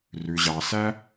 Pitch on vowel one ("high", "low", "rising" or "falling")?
low